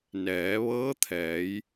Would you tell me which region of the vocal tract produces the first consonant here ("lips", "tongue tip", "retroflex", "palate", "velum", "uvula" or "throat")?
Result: tongue tip